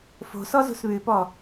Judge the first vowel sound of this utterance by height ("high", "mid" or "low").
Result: mid